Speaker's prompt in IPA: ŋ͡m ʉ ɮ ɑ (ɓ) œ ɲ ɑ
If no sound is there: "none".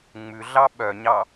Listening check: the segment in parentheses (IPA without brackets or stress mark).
ɓ